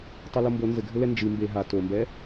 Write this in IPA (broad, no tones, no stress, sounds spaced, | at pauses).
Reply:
tˤ ɛ l o m b o n z ɘ ɡʱ ɘ l ɛ n d͡ʒ ɨ m b e ɦ a t o m b ɛ